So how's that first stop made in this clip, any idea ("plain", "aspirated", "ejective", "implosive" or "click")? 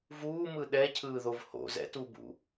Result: implosive